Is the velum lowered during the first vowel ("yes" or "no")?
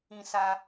yes